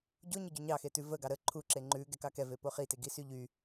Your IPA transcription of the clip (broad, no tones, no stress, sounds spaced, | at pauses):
ɟ o ɲ ə ɟ o ɲ ɑ x e t ʉ v ə ɡ ɑ ɾ ə ǃʰ u ǁ e ŋ͡ǃ ʉ ɡ ɛ k ɑ k ɛ v e p o χ i t e ɡ i s y ʎ y